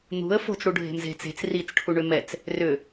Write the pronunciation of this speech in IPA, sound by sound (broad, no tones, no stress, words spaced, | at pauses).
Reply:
n̪ṳə̯ fo̤t͡sɽuɖʱe̤m ze̤t͡s e̤t͡s rit͡sʈʰuɳʏ mɛt͡s | rʏ